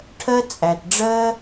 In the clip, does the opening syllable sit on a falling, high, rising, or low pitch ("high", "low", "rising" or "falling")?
high